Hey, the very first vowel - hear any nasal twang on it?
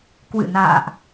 no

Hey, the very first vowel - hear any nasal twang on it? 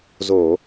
no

